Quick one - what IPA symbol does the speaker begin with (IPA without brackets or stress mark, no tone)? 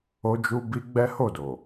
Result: o